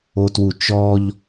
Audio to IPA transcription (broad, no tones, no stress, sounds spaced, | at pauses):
o t w u t͡ʃ ɔ ʎ